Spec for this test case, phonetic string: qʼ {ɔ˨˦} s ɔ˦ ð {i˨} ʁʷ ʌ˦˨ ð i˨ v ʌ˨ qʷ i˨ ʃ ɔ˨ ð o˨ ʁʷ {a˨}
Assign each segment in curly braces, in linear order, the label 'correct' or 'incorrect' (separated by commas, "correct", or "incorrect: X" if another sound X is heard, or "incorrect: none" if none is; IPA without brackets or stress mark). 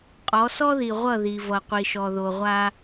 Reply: correct, correct, incorrect: a˦